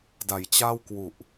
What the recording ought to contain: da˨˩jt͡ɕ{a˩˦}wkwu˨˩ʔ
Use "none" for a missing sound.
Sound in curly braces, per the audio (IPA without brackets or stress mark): a˥˩